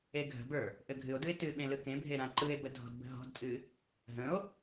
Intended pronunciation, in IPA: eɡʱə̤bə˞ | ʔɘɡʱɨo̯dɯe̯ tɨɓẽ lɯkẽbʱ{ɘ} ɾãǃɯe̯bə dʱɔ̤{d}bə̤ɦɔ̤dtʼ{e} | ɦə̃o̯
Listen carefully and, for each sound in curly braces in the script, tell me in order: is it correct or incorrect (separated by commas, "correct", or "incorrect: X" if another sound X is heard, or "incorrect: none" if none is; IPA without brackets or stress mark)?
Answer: incorrect: e, correct, incorrect: ɨ